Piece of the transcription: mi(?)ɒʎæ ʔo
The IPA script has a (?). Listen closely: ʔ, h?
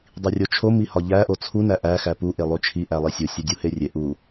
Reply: h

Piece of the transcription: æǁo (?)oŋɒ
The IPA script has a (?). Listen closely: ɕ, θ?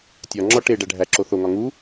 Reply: θ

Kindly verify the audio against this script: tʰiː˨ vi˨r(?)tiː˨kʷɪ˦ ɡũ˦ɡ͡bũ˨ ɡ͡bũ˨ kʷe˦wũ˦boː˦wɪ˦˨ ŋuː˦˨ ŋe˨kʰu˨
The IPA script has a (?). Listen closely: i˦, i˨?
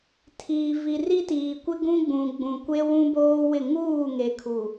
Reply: i˦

